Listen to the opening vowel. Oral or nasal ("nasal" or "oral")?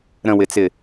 nasal